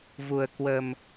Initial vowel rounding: rounded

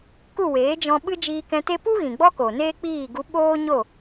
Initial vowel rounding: rounded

